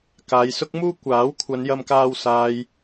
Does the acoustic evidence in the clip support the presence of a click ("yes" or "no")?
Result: no